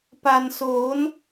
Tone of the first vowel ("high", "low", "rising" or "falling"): low